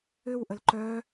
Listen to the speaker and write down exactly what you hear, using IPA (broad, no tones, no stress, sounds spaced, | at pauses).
ʏ w ʔ ə l ǃ œ